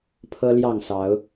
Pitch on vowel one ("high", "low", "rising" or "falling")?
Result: high